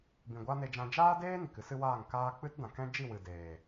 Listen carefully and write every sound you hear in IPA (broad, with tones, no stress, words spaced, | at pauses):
bĩ˨ɡʷa˦ne˧d͡ʒã˧ d͡ʒaː˦deː˦ ni˨kɨ˦sɨ˦waː˦˨ŋ kaː˧ k͡pɨ˦tdã˨kɛ̃˦ d͡ʒi˦˨wɨ˨ deː˨